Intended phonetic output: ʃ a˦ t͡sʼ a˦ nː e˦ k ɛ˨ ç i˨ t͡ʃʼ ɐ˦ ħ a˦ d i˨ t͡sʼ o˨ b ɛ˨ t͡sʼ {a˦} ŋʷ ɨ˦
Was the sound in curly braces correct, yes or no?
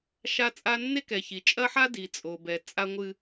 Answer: yes